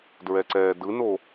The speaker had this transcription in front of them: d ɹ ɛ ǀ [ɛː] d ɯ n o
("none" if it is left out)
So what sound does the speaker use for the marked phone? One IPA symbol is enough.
ɛː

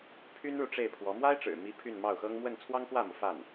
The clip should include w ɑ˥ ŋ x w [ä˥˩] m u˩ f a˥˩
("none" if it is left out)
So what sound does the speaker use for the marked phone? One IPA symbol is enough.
ä˥˩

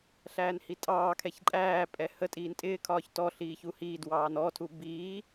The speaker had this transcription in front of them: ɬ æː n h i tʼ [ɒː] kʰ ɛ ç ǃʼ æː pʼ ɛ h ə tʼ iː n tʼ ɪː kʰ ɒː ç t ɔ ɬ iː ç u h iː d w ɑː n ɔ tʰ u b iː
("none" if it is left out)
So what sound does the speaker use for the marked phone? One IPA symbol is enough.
ɑː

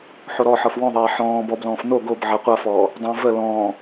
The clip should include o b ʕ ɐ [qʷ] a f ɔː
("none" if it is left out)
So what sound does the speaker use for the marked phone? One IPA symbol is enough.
qʷ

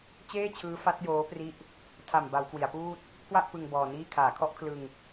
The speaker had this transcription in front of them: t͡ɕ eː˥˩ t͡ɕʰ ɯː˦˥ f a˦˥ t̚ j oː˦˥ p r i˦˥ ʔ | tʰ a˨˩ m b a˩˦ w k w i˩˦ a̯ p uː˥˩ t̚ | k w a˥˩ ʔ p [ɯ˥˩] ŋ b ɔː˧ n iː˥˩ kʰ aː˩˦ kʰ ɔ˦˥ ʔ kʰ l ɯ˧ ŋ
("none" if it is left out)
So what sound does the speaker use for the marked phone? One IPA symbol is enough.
ɯ˧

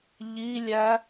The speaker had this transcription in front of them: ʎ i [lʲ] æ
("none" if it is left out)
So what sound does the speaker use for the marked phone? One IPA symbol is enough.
lʲ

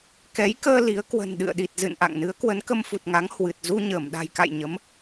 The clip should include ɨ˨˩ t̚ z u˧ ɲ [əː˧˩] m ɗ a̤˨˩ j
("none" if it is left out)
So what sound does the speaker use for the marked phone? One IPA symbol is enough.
əː˧˩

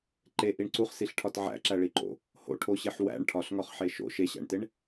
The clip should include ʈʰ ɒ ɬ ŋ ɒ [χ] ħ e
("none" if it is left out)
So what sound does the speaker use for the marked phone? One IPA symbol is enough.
χ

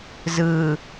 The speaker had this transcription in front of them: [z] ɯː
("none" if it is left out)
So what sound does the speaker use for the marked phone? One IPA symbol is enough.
z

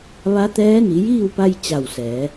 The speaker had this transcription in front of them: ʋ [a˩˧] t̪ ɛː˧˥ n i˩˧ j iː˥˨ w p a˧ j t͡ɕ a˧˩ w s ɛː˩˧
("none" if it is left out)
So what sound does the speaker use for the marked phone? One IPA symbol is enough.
a˧˥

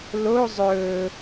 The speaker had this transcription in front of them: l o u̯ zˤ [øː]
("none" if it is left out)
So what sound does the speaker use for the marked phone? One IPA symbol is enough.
ɵː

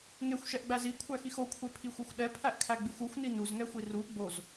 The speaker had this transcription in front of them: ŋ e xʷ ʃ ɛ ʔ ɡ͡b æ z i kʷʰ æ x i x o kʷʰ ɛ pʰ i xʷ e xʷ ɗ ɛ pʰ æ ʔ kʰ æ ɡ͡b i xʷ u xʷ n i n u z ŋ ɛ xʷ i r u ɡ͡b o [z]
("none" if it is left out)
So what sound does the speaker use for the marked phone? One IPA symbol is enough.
z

